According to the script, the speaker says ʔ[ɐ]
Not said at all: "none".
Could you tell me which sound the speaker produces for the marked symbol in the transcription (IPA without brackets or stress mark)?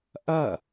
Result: ɐ